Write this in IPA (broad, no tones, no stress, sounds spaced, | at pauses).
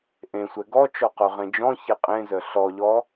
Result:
ʔ ẽ sʷ ɛ ɡ ɔ t͡ʃ ɔ q œ ʁ ẽ d͡ʒ ɔ̃ ç e qʼ ẽ z œ ɬ ɔ ʎ ɔ